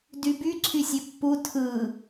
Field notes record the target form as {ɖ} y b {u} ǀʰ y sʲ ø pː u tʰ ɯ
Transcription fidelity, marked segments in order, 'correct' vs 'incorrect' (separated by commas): incorrect, incorrect